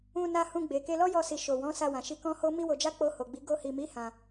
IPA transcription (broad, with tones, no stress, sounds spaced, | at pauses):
ũ˧ n a˧ h ũ˧ ɡ͡b e˨ k e˧ l ɔ˦ j ɔ˧ s i˨ ʃ o˨ w ɔ̃˨˦ s a˧ w ã˨ ʃ i˧ k ɔ̃˦ h o˦ m i˦ w o˧ d͡ʒ a˦ k͡p o˧ h o˨ ɡ͡b i˨˦ ɡ o˧ h i˨ m i˨˦ h ã˧